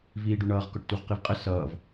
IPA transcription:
v iː ɖ u ɳ ʌː ʁ k ɔ ʈ t u ʁ q i v qʼ ə s ʌː v

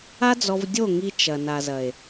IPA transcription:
a˦ d͡z ɔ˧ v dʲ o˦˨ ŋ i˧ t͡ʃ ɐ˨ n a˨ z ɐ˨ e̯

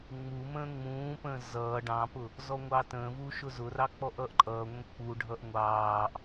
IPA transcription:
ŋ͡m u m ə̃ː ŋ͡m ũː p ə̃ː z ʌː ɖ ɑ̃ p ʊ | z ɔ ŋʷ ɑ t ə̃ː v u ʃ ʊ z ʊ r ɑ k͡p ɔ ʔ ʌː ʔ ǃʼ ʌː ŋʷ ə̃ k͡p u ɖʱ ʌ ʔ ŋʷ ɑː ʔ

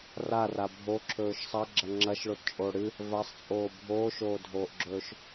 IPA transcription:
r a r a bʱ o ǁʰ ɵː ʃ sˤ ɐ ɡ͡ǁ ɐ ŋ͡ǁ ɐ ʃ ɭ o t t͡ʃʼ oː ɽ ɨ | v a sˤ t͡sʼ oː bʱ oː ʃ oː dʱ oː ʔ ɡ͡ǁ ɵː ʃ

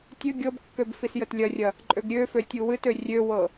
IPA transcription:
tʲ ɨ ɡʲ ɤ b kː ø b f i s j ə t lʲ ɐ rʲ ɐ | ǃʼ ø ɡ ɾʲ ø f ø tʲ u w ɨ t ø rʲ ø w ɤ

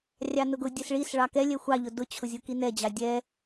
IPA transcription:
rʲ ɑ n ʊ ɡ ʊ dʲ ɛ s ɭ i s ɭ ɑ k ɛ lʲ ɛ xʷ ɑ ʎ ʊ d ʊ t͡ɕʰ ʊ zʲ ʊ k i n ɛ d͡ʑ ɑ dʲ ɛ

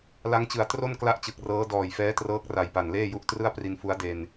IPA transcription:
l a˦˥ ŋ t͡ɕ ɯ˨˩ a̯ t r o˥˩ n k l a˥˩ ʔ t͡ɕ ɯ˨˩ k̚ r ɤː˦˥ d ɔː˨˩ j f ɛː˦˥ t r ɤː˦˥ k̚ r a˨˩ j p a˨˩ n l eː˥˩ j u˦˥ ʔ t r ɯ˥˩ a̯ p r i˧ n f u˦˥ a̯ d e˧ n

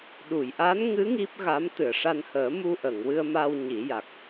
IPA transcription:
ɗ u˨˩˨ j ʔ a˧˥ n ŋ ɨ˧˥ ŋ i˦˥ p̚ ɣ a˧˥ m t̪ ɨ˨˩˨ ə̯ ʂ a˧ n h əː˨˩˦ m u˧ ʔ ə˨˩˨ ŋ w ɨ˧ ə̯ m a˧ w ɲ i˨˩˦ j a˨˩ k̚

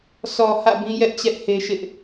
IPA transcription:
sʰ ɔ˨ h ä̰˦˨ b ĩ˦ j ɛ˦ ʔ t͡ɕ ɛ˦ ʔ h e˦ ʃ ɪ˦ ʔ

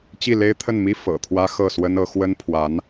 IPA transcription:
t͡ɕ i˥˩ l e˥ ɪ̯ t̪ʰ ə˥˩ n m i˥ f ɤ̰˨˩ t̪ʰ w ä˥ x ɤ˥˩ s w ə˥ n ɤ˧˥ x w ə˥ n pʰ w a˧˥ n

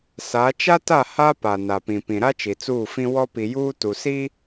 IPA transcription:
s a˨˦ t͡ʃ a˦ t a˦˨ h a˦ p a˨ n a˨ p ĩ˨ p ĩ˨ ɾ a˦ t͡ʃ i˨ t͡s uː˦˨ f ĩ˦ w ɔ˦ p i˨ j uː˦ t u˨ s i˦

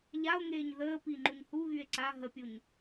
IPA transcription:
ʎ a o̯ ŋ eː ɲ ð əː p i ŋ͡ǃ u ɲ h u ɣ y e̯ ǀ a ɦ ə pʲ u ɲ

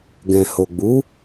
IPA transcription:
ɡ ɛ̃˨ h o˨ ɡ͡b u˨˦

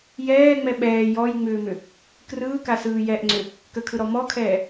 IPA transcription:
j ɛː ŋ͡m ɛ ɓ ɛː j ɔ j ŋ͡m ʏː m ʏ | k r ɯː k a s ɯː j ɛ ʔ ŋ͡ǀ ʏ | k ə kʰ ɯ ɾ ɔ m ɔ kʰ ɛː

